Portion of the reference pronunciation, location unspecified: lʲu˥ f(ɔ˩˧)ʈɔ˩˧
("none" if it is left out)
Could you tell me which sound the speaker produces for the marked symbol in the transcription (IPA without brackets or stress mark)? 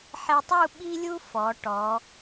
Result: ɔ˩˧